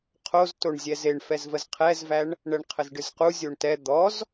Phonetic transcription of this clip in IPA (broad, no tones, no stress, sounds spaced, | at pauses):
qʰ o z t o ɳ zʲ ɛ z e ɳ f ɛ z v ə z qʰ ɛ z v æ ɳ | ɳ ɛ ɳ qʰ ə z ɖ ɨ z q u zʲ o ɳ t ɛ d̪ ɔ z